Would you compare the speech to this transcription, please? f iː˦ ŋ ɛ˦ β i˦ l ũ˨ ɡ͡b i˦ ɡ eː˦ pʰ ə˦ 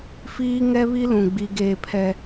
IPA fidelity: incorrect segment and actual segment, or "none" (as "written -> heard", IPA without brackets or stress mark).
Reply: ə˦ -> ɛ˦